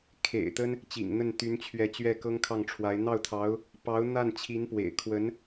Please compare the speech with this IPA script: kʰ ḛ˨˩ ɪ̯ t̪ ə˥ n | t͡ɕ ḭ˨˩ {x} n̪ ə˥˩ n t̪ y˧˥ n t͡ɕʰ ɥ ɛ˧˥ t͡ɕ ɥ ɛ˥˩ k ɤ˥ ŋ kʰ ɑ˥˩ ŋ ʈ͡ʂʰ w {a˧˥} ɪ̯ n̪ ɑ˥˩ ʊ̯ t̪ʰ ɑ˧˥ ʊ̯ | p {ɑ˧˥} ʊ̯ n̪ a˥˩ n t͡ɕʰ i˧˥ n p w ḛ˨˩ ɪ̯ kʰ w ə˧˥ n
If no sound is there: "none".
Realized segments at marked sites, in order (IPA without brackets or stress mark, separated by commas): ŋ, a˧˥, ɑ˧˥